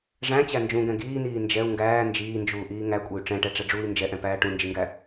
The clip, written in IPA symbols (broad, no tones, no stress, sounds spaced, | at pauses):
ʐ æ̃ t͡ɕ æ n d͡ʒ ũ ɡ ɛ̃ ɡ iː n iː n d͡ʒ ɛ u̯ ŋ ɡ æː n d͡ʒ iː n d͡ʒ uː ʔ iː ŋ æ kʷʼ ɛ y̯ ʈ͡ʂ ɛ̃ ʈ ɛ ʈ͡ʂ ɛ ɖ͡ʐ uː i̯ n d͡ʒ ɛ ʔ ɛ̃ p æː ʈ ũ n d͡ʒ i ŋ ɡ æ